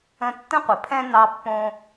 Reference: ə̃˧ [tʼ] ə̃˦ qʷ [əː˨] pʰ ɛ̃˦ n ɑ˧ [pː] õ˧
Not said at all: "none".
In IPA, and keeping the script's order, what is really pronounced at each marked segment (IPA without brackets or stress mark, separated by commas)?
tː, ə˨, pː